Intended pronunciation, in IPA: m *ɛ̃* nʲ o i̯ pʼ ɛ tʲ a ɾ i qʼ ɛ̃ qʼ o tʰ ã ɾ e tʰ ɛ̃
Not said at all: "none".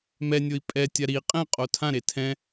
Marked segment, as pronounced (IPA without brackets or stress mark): ɛ